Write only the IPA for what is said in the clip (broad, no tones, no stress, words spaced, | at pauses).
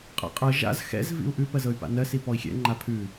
qʼa̰qʼɤ ʒa̰z xɛ̰z vḭu̯ʔʉ pɜzɤy̯pa̰nɜ sipɔi̯xʲɛ̰ ŋ͡ǃapʰʉ